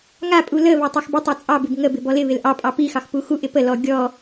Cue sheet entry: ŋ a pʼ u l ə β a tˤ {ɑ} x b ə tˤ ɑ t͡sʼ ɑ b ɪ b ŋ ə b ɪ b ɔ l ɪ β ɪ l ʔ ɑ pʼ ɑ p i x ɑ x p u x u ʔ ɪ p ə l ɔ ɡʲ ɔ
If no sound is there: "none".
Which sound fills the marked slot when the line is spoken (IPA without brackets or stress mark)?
ɑ